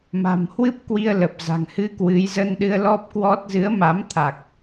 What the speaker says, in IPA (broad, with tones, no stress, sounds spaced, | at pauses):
m a̤˨˩ m h w ɨ˦˥ p̚ k w i˧ ə̯ l ə˨˩ p̚ z a̤˨˩ ŋ h ɨ˧ k w ɨ˨˦ j z ə˧ n ɗ ɨ˧ ə̯ l ɔ˦˥ p̚ k w ɔ˦˥ t̚ z ɨ˨˦ ə̯ m a˨˦ m t̪ʰ a˨˩ k̚